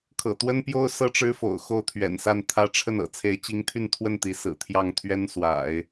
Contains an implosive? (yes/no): no